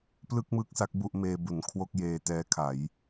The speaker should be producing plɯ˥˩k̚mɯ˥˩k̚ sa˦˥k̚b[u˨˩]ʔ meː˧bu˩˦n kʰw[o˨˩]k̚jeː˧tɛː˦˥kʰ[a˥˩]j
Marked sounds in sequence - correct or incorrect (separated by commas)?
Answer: incorrect, incorrect, incorrect